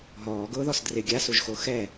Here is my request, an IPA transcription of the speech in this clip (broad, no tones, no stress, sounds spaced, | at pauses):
ɦ ɔː ɡ ʊː ð ɔ s d r ɪ ɡʲ a s u ʒ x o x ɛ